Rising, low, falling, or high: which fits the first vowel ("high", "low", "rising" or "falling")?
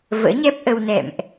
rising